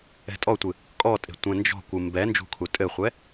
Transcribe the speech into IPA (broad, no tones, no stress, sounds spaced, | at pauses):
ɛ̤ tʼ ɔ tʷ ɨ | kʼ ɔ tʼ e̤ tʷ ɛ̃ n d͡ʒ ɔ̤ kʷ ɨ m b ɛ n d͡ʒ ṳ kʰ u tʼ ɘ χʷ ɛ